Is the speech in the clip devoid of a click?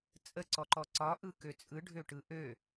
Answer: no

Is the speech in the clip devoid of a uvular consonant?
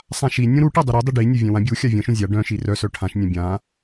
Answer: yes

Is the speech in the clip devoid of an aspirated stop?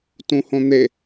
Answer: yes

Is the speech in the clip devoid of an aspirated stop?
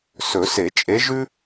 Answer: yes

